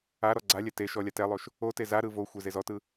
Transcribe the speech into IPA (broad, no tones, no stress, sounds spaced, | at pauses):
a ɾ ɔ ɡ͡ǀ a lʲ ɛ t e ʃ ɔ lʲ a t ɛ lˠ o ʃ | o t e z a ɾ ɯ v o xʷ e z e z ɔ t ɯ